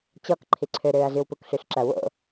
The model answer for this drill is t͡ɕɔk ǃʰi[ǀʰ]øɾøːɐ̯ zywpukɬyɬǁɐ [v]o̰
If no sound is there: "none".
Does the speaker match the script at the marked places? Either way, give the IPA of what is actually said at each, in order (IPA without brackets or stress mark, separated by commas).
ǀʰ, w